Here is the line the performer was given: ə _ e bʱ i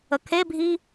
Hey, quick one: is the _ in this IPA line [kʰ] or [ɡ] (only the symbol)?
kʰ